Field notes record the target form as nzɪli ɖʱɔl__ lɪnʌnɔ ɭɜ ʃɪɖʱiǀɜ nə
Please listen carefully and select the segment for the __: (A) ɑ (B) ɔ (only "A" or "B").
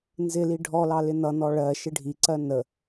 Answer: A